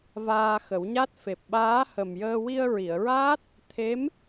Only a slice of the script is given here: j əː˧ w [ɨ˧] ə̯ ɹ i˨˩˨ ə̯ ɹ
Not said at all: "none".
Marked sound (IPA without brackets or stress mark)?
i˧